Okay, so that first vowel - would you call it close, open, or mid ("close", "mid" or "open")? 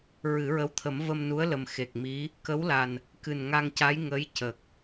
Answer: close